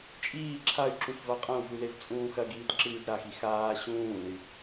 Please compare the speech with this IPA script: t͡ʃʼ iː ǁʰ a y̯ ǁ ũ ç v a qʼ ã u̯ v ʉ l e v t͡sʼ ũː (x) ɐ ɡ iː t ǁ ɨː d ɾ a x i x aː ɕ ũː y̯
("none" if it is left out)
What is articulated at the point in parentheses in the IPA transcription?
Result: x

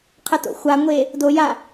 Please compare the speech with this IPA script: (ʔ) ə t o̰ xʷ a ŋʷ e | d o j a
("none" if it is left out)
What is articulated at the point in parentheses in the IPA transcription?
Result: qʰ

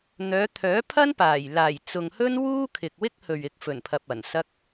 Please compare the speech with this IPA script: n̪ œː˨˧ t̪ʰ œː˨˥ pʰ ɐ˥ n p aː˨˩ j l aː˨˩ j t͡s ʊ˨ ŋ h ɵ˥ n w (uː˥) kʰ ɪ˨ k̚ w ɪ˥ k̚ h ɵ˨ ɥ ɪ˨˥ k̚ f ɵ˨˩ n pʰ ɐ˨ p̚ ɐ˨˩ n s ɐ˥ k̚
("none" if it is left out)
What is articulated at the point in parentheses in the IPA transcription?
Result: uː˥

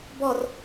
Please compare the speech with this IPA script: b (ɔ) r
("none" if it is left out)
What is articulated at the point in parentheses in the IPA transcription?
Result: ɔ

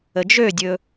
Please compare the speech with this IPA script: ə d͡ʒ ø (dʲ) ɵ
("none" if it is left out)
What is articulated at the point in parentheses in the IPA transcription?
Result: dʲ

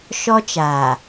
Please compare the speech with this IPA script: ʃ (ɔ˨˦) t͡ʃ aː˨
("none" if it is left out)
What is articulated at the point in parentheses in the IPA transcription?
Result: ɔ˦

